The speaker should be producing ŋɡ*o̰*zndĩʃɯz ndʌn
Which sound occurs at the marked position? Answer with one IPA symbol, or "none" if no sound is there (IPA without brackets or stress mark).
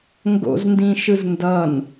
o̰